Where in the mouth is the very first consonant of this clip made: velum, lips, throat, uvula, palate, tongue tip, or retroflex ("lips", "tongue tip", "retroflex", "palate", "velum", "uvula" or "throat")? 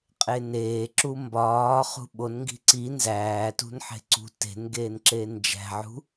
uvula